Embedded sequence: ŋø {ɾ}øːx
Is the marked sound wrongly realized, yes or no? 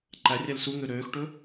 no